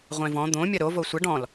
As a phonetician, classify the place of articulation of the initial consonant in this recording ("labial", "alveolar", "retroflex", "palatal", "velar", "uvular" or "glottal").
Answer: uvular